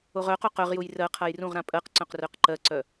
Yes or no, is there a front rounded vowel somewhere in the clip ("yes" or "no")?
yes